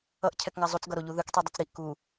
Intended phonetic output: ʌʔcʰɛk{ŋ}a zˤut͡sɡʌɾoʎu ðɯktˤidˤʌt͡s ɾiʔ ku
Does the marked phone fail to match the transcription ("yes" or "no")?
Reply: no